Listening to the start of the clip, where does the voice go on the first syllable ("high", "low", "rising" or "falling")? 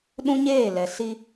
high